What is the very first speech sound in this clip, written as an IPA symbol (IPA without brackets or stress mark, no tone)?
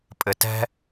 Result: pʼ